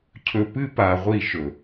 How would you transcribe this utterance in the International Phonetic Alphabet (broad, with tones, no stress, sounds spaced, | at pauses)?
cʰ ɵ˨ p ɨ˦ p a˨ ʁʷ i˦˨ ʃ ɵ˨